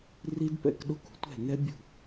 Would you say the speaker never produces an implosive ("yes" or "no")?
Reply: no